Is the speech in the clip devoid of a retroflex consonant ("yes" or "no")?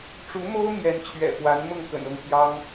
no